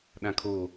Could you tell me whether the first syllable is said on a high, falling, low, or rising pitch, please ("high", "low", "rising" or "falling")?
low